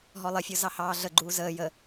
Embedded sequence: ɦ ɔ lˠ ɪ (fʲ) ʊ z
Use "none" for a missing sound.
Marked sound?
fʲ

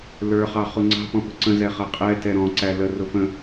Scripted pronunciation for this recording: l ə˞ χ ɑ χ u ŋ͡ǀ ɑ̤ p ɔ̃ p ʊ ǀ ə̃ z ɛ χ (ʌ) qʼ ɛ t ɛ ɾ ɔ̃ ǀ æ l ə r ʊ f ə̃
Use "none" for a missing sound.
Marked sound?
ʌ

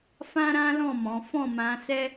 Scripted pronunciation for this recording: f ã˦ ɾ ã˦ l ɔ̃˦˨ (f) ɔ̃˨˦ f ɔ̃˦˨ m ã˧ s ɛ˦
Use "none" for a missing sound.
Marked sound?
m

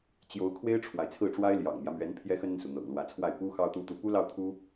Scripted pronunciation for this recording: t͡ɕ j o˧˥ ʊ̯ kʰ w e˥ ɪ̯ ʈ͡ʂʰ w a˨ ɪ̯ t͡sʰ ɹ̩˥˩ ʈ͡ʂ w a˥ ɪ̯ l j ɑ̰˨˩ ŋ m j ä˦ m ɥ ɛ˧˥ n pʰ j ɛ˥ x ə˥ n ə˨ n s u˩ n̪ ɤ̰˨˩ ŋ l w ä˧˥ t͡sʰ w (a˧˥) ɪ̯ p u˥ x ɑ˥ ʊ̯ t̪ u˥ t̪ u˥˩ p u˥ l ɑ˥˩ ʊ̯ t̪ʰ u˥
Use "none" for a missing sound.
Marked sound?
a˥˩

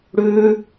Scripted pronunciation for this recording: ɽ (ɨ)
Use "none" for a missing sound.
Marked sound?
ʉ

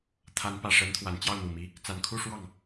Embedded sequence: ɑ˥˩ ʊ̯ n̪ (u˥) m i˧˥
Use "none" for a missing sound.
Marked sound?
u˨˩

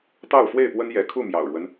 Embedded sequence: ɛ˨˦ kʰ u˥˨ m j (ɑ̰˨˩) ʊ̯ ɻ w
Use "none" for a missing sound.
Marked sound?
ɑ̰˨˩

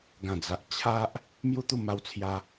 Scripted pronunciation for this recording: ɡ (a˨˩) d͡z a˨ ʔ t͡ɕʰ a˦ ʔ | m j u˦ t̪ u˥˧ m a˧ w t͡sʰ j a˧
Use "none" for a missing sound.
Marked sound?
ã˨˩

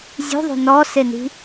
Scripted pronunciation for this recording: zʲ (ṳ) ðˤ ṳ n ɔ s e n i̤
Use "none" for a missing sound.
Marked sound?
ṳ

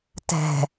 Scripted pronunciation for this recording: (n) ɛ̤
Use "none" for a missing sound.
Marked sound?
t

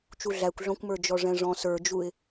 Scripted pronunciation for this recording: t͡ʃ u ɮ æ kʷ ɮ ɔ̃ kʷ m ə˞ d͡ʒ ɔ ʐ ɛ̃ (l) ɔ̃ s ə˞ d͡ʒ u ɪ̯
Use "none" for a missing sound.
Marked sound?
ʐ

